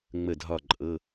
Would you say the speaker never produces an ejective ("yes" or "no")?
no